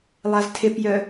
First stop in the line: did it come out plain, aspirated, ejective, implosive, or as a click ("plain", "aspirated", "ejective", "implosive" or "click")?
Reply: aspirated